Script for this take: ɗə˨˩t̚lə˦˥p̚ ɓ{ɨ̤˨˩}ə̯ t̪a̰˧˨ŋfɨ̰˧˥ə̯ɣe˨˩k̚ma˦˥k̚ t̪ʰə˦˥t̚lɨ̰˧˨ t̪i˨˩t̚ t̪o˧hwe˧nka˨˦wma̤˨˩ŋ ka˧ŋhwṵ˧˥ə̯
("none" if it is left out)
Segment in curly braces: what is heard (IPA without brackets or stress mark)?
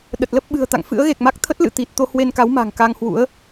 ɨ̤˨˩